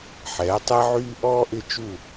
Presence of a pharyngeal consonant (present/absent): present